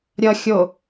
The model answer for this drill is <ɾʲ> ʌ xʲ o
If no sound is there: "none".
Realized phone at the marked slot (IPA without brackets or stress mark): ɾʲ